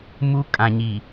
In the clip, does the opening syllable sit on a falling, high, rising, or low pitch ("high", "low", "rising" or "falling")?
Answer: high